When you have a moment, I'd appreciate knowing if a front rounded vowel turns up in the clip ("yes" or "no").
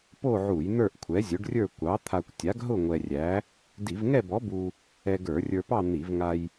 no